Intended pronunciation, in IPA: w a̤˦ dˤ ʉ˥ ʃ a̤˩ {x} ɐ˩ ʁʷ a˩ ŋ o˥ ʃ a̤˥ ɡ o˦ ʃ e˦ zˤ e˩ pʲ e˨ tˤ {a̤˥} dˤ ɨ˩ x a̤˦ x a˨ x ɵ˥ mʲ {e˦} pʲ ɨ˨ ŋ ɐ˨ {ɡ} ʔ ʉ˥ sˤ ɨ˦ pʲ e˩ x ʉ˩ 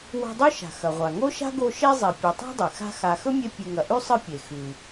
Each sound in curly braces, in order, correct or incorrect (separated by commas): correct, correct, correct, incorrect